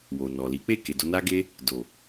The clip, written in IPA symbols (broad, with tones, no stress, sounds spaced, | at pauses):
w o˨ n ɔ˨ l i˨˦ k͡p e˦˨ k e˨ d o˧ n a˦ ɡ e˦ | d o˨